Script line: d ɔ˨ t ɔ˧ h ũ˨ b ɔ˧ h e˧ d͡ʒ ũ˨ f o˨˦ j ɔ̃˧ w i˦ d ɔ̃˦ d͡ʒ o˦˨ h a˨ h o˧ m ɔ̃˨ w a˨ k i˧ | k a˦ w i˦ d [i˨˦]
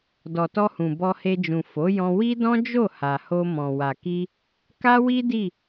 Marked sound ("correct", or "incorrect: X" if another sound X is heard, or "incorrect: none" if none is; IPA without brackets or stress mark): incorrect: i˦˨